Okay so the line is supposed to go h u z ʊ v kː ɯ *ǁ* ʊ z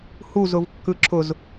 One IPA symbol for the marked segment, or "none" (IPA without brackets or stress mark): ǁ